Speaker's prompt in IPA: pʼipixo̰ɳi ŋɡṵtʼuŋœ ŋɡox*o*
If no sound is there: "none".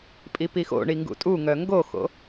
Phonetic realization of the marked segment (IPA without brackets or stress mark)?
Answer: o̰